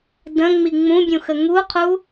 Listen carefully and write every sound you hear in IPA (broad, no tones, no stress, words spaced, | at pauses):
də̃ ŋ͡miŋ͡mũbʲũ xəŋuqʰu